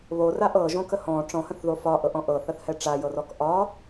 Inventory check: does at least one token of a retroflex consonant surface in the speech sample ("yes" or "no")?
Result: yes